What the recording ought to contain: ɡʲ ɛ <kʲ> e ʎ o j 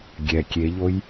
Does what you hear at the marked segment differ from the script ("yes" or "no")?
no